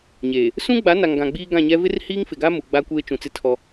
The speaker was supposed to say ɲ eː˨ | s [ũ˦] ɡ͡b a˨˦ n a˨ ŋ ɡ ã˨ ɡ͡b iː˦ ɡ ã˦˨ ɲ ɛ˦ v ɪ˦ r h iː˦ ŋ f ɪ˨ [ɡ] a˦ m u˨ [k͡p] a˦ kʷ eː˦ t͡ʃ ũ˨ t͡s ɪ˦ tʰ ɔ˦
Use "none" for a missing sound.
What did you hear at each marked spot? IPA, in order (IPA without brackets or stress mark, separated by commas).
ũ˦, ɡ, ɡ͡b